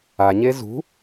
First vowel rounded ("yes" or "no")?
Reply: no